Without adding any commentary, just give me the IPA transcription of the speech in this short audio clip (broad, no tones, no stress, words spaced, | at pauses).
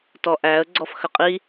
tɔʔæə̯ ɡ͡ǀɔfxəqʼi